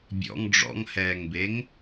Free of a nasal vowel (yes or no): yes